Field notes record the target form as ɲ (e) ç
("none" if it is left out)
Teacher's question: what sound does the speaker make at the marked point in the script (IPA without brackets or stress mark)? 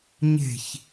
e̤